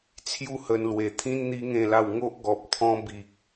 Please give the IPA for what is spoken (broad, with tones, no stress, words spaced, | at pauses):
t͡sʰju˥˧hə˧nlwe˧t̪ʰĩ˦n n̪i˦ŋẽ˥˧la˥˧w ŋo˦ʔ ɡɔ˨p̚t̪ʰɔ̃˧bi˨k̚